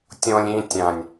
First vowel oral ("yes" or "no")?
no